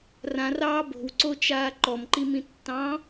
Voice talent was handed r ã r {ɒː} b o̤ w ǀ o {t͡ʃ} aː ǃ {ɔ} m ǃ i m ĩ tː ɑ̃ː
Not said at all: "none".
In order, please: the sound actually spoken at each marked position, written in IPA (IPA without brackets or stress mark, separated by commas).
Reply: ɑː, t͡ʃ, ɔ